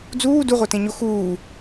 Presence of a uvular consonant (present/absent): present